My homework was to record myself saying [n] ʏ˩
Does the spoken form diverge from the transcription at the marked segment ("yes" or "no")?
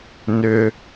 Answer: no